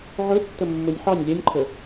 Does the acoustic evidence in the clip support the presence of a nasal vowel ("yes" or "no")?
no